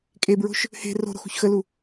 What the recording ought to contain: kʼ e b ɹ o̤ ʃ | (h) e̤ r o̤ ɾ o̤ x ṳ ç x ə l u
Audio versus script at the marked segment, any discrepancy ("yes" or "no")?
no